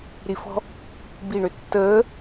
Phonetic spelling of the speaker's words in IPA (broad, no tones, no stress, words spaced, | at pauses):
ɾifɔ̤ | bi ɳøtːəː